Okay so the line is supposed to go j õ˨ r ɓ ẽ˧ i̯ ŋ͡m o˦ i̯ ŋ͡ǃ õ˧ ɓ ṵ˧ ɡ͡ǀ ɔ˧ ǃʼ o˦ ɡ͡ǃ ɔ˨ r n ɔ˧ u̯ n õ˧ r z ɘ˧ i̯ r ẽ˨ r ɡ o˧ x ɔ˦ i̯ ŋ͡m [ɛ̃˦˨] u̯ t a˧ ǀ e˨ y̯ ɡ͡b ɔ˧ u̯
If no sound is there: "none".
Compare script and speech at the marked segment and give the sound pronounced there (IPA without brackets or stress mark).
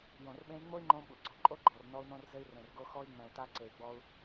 ɛ̃˨